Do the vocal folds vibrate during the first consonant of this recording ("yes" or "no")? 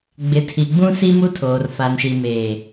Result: yes